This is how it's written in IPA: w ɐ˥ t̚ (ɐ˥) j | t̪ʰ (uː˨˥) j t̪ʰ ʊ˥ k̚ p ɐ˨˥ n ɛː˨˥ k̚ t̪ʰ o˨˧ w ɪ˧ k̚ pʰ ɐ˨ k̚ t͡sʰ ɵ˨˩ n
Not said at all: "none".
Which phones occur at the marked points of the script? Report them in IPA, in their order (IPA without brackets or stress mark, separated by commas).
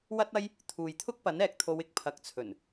ɐ˥, uː˨